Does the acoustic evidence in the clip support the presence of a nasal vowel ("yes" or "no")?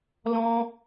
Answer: yes